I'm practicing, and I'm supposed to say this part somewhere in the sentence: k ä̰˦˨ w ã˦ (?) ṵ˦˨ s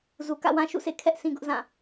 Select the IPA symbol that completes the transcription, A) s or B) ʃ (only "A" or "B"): B